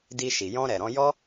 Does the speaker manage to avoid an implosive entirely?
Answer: yes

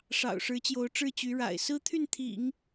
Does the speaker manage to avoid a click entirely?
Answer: yes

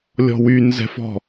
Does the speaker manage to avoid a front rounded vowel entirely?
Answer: no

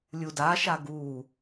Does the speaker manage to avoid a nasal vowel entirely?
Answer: yes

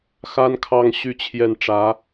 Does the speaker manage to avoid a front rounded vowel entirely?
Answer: no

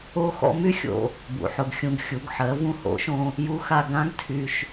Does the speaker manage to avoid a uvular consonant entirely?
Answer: yes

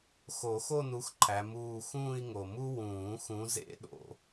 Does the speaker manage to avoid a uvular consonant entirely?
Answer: yes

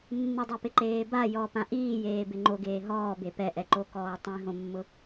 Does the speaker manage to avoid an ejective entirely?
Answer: yes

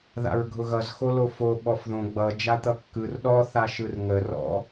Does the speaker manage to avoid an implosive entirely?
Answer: no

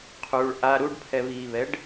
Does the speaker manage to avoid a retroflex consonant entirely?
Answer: no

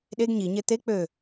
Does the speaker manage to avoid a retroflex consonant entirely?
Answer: yes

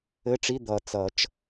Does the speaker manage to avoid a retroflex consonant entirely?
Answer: no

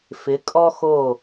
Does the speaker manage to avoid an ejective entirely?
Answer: no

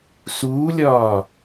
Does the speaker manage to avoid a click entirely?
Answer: yes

